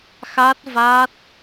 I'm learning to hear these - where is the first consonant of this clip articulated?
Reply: velum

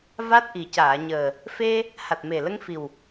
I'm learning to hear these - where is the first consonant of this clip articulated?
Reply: lips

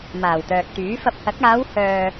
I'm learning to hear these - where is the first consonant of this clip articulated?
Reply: lips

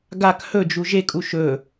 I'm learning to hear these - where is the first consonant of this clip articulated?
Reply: velum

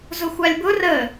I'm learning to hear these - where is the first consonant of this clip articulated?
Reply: tongue tip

